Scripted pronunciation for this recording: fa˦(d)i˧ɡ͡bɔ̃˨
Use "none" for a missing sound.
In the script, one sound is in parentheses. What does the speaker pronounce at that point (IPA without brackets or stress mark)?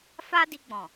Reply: d